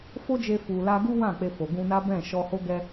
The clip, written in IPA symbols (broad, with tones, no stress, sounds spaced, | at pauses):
f o˦ d͡ʒ e˧ f u˨ l a˧ ɡ u˦ w ã˦˨ k͡p e˧ f o˨ ɡ ũ˧ n a˦ b ɛ̃˦˨ ʃ ɔ˧ h o˦ ɡ ɛ˦